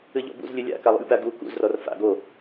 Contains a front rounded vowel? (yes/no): no